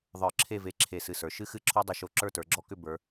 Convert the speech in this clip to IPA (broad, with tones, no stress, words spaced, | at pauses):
ðˤə˞˧˩ǁʰe˥˧ve˧ ǁʰe˧˩sɨ˧˩sə˞˩˧ ʃɨ˥xɨ˥˧ ǁʰɔ˥dˤɨ˧ʃo˧ ǁə˞˥˧tə˞˩˧ɡ͡ǁɔ˥˧kʏ˥˧ bə˞˩˧